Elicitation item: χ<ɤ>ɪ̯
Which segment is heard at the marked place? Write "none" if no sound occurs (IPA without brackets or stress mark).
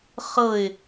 ɤ